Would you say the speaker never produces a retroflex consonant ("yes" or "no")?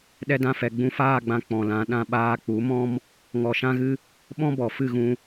yes